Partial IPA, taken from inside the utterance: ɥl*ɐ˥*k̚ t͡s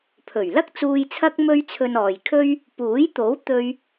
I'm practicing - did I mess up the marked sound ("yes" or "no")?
no